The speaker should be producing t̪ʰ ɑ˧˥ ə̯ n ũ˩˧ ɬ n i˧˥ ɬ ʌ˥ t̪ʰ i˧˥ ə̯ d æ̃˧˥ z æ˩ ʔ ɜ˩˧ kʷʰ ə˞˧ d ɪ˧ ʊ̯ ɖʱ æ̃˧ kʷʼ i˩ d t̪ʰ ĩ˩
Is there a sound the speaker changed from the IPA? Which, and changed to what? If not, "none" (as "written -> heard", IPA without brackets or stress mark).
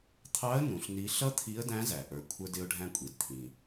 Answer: ɜ˩˧ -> ə˞˩˧